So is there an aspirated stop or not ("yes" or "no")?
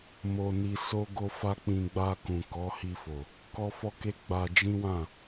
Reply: no